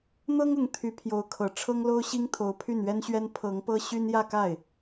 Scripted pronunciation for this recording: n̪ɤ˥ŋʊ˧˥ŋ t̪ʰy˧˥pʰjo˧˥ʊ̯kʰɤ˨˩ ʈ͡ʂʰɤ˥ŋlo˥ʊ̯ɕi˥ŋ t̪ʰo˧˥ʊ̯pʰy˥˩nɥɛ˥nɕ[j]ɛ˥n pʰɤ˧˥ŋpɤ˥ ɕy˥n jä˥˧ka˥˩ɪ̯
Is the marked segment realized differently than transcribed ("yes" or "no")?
yes